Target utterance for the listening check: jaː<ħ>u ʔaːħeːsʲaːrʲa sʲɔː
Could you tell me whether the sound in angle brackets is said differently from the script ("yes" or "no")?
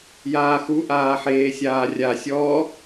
yes